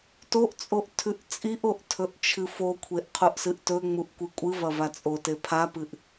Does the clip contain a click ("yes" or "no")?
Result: no